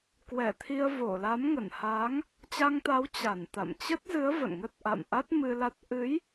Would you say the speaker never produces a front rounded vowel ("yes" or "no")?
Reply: yes